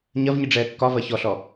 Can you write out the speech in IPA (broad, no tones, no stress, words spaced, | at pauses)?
ɲɐvɲiɖ͡ʐɛː kːɒvɐ çɔɬɔ